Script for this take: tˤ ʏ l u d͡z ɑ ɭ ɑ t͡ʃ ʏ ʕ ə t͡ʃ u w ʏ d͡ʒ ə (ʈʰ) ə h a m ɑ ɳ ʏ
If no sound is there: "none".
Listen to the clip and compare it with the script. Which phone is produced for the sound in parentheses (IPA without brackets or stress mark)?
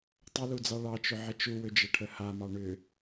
ʈʰ